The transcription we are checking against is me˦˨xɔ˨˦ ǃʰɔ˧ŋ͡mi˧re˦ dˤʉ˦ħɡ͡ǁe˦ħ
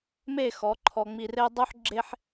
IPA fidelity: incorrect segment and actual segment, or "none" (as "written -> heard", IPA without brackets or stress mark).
none